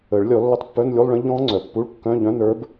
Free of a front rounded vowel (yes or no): no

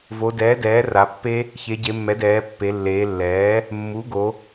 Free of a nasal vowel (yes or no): yes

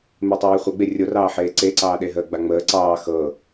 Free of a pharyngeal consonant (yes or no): no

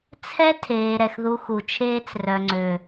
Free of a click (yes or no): no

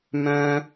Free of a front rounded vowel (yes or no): no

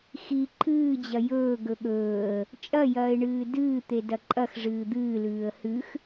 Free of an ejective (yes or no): no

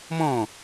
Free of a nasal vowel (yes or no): no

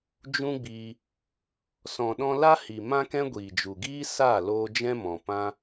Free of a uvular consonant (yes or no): yes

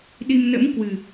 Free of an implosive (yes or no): no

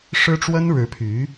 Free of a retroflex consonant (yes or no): no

